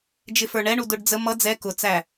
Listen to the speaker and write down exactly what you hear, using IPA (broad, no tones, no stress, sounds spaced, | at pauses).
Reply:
d͡ʒ ɪ f ə˞ ɳ ɛ ɳ u d ʊ ɖ d͡z ə m ʌ d͡z ɛ k ʊ t͡s æ